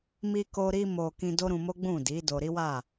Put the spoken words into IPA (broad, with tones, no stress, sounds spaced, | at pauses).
m i˧ k o˧ ɾ i˧ m o˨ k ĩ˧ d o˦ ɾ ũ˧ m o˦ ɡ͡b ũ˦˨ d i˨˦ d o˧ ɾ i˦ w a˦˨